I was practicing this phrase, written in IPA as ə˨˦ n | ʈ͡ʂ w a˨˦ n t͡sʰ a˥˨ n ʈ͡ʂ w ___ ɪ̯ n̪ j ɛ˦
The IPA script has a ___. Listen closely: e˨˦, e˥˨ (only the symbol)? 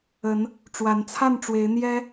e˨˦